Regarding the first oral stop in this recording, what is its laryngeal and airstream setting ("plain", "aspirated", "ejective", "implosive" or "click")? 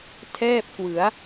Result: aspirated